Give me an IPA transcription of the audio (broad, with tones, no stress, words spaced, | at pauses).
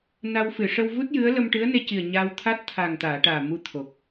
na˧w fɨ˨˩˨ʂə˧wvu˦˥t̚ jɨ˧˥ə̯ lə˧mʈɨ˧˥ə̯ne˧ci˨˩ə̯ ɲaː˧wt̪ʰa˦˥t̚ t̪ʰa˨˩ŋt̪aː˨˩˨ ʈaː˨˩mu˧t̪ʰo˨˩k̚